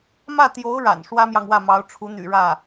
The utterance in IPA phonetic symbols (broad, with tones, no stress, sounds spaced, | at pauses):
m ä˥˩ t̪ j o˧˥ ʊ̯ ɻ a̰˨˩ n ʂ w ä˥ m j ɑ˨ ŋ w ä˥˩ m ɑ˧˥ ʊ̯ ʈ͡ʂʰ u˧˥ n̪ y̰˨˩ ɻ ä˥˩